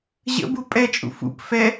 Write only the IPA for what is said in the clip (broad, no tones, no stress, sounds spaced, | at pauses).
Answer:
ʑ ə̰ b u pʼ ɛ t͡ʃʼ ṵ f ṵ p f ɛ